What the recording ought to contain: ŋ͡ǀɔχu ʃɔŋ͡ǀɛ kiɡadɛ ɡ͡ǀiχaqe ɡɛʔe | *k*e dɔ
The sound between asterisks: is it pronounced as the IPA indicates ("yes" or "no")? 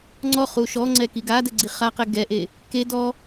yes